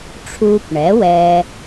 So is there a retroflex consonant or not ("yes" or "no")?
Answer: yes